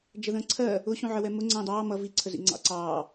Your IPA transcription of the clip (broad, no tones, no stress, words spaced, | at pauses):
d͡ʒəðə̃ːǀʰɜ | ʊɕũʕəwɛ mʊ ŋ͡ǀə̃ːdˤɑː mʌ viǀʰəzḭ ŋ͡ǀɑ̰ǀɑː